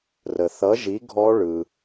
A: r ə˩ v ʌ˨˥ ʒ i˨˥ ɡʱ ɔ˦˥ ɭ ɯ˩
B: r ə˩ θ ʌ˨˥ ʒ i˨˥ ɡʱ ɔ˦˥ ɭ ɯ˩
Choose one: B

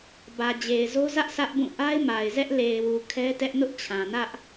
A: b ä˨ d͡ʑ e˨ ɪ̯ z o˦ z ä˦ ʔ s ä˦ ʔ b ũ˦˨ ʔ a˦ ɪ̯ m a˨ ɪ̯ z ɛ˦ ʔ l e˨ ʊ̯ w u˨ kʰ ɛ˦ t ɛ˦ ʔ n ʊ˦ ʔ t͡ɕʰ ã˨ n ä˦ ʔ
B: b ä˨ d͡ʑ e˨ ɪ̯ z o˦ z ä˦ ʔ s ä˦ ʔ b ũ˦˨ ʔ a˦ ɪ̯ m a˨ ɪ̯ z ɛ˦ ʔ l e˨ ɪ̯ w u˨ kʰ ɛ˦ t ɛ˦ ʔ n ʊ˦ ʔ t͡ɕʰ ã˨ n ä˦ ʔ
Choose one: B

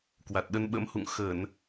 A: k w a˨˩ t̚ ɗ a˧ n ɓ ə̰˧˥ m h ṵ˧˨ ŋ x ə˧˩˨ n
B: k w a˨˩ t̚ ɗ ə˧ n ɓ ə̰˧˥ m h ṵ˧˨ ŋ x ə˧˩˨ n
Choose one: B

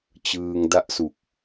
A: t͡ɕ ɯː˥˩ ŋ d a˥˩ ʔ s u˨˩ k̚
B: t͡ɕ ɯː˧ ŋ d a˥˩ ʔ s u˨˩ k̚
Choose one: B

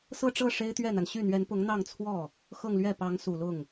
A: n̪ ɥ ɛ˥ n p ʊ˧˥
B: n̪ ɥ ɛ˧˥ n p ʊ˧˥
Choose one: B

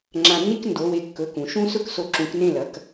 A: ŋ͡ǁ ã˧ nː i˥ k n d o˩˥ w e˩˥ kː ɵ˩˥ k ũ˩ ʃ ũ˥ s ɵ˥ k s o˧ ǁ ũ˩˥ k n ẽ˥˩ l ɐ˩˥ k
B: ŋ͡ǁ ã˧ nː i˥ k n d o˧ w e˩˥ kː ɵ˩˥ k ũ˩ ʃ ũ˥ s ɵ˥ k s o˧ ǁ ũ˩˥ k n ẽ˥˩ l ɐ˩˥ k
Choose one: A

